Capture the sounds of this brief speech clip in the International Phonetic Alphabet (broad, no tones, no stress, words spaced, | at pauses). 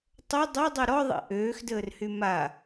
tˤə dˤodˤy ɾɔðˤḭ ʔøːxdəːrhy ma